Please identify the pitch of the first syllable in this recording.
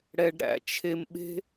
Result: low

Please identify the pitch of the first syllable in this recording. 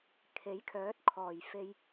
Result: rising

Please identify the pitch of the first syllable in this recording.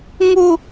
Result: high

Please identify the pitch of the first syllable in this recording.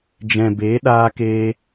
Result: low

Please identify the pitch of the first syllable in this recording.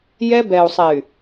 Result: high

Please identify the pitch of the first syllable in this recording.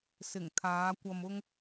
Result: low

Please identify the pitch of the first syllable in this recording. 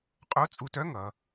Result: rising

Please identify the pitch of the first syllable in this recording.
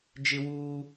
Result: high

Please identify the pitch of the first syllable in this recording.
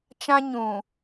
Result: high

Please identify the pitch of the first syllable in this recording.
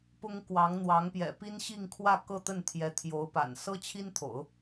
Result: high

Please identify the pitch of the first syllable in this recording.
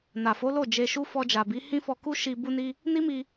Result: low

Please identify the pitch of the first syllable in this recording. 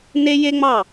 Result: high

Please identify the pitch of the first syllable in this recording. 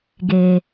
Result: low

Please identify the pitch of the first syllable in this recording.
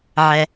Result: low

